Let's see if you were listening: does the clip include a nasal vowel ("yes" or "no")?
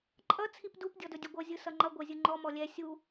no